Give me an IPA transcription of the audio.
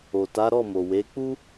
o˨ t a˨˦ ɾ ɔ˦˨ m o˨ w e˨˦ k͡p u˦

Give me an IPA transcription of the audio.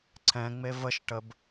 ǀ ɛ̃ ŋ͡m e v ə ʃ ʈ ə b

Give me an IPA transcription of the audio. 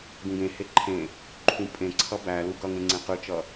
ɡ ũ ɡ ẽ h e ǃʰ ẽ | ǃʰ ũ pʼ ẽ ǀʰ ʌ b æ l u ɡ ʌ ŋ ẽ ŋ͡ǀ ẽ q ɯ t͡ʃ ʌ

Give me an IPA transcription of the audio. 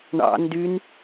ɳ ɑ̰ n d y n

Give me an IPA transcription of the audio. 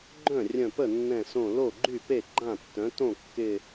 ɡ͡ǃ œ̃˥˩ rʲ œ̃˧˩ p ə˥˩ nː ɛ̃˧˩ s õ˧˩ l o˥˩ ɡ͡ǃ y˥˩ p e˥˩ ɡ͡ǃ ã˥˩ tː œ̃˩˥ t õ˥˩ kː ɪ˧˩

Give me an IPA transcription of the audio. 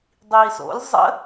dˤ iː s o̰ lʲ zˤ ə̰

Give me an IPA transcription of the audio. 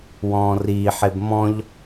w ɔ̃ː r iː ħ e b m ɔ̃ ʎ

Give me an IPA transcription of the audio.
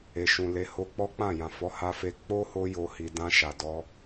e˨ ʃ ũ˨ l e˨˦ h o˦ k͡p ɔ˦ k͡p ã˦˨ j ã˨ f ɔ˨˦ h a˧ f e˧ k͡p o˦ h o˧ j o˨ h i˨ d ã˧ ʃ a˨ d ɔ˧

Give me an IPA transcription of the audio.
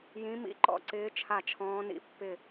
j ĩ˧˥ m ḭ˧˥ ǃ ɔ̰˥˨ ǀ ɪː˧˥ t͡ʃʰ a˥˨ t͡ʃʰ ɔ̃ː˧˥ n ḭ˧˥ pː ɪ˥˨

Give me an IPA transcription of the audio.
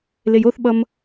l e j o θ ɓ ʌ m

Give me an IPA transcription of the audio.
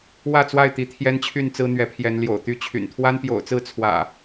w ä˥˨ t͡s w a˥˨ ɪ̯ t̪ i˨˦ t̪ʰ j ɛ˦ n t͡ɕʰ y˥˨ n t͡s ɹ̩˦ n̪ ɥ ɛ˨˦ pʰ j ɛ˨˦ n l j o̰˨˩ ʊ̯ t̪ y˦ t͡ɕʰ y̰˨˩ n t̪ʰ w a˦ n p j o̰˨˩ ʊ̯ t͡s ɹ̩˥˨ t͡sʰ w ä̰˨˩

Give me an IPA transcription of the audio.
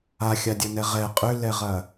a xʲ a dʲ ɐ n ɛ ʁ ɛ qʼ ʏ l ɛ ʁ ɐ

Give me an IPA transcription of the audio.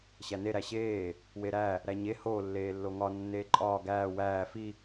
ɕ æ n e ɾ æ ɕ eː | w e ɾ æ | ɾ æ ɲ e h oː lː eː lː o ŋ ɒ nː eː ǃʼ ɒː ɡ æː w æː f i

